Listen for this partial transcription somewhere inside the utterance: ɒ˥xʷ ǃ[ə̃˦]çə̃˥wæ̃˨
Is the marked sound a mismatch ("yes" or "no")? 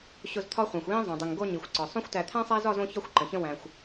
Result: yes